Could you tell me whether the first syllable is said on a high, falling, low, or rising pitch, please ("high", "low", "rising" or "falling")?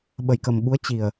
low